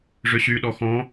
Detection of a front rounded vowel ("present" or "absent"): present